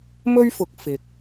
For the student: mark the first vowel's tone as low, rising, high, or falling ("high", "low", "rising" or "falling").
high